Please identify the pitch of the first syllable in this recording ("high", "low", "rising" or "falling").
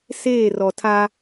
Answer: falling